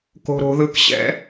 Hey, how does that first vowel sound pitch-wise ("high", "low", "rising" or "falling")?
high